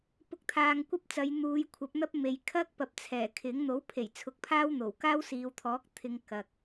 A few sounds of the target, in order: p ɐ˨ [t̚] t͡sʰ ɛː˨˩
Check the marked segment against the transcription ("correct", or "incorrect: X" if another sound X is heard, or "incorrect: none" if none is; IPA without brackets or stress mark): incorrect: p̚